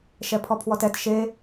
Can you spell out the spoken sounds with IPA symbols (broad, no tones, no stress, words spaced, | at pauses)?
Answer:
ʃɛpʰɔpʰwɔtɛt ʃe